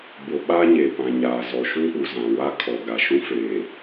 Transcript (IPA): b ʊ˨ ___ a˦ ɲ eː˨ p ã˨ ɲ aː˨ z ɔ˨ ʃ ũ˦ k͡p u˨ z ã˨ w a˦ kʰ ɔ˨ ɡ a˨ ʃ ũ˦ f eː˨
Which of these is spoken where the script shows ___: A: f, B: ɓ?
B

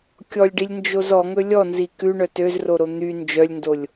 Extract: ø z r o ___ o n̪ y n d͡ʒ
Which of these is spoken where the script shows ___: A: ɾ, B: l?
A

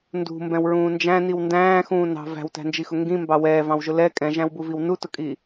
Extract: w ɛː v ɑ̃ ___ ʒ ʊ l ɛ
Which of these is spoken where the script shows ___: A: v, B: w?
B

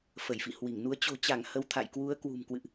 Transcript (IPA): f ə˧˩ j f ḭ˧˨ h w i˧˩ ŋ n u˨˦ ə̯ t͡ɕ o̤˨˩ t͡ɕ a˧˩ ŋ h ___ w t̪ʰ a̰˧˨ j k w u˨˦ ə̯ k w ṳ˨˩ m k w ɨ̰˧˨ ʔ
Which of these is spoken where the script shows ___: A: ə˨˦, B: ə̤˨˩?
A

